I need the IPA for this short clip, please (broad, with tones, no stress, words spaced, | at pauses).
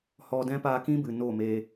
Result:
hɔ˧dɛ̃˦ paː˧kĩ˦bɨ˨ no˦˨meː˧